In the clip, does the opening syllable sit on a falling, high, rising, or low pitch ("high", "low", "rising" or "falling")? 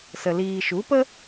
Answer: low